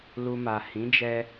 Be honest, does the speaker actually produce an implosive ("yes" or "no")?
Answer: no